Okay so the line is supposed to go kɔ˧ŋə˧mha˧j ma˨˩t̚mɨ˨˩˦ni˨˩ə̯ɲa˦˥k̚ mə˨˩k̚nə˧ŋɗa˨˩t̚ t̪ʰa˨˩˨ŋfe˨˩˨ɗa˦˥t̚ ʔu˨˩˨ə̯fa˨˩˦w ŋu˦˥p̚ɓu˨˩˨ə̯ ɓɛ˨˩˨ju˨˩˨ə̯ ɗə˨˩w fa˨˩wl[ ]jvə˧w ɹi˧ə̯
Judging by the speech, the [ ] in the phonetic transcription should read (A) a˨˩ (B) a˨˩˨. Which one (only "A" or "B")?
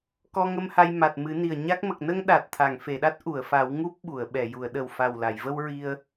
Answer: B